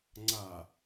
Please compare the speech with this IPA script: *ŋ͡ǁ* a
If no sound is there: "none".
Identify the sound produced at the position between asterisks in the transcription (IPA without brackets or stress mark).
ŋ͡ǀ